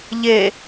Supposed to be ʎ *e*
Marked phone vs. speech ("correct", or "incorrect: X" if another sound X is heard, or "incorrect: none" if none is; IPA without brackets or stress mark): correct